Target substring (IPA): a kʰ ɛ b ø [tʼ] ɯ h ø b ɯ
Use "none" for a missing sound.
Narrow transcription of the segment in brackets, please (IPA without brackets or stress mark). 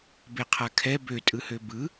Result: tʼ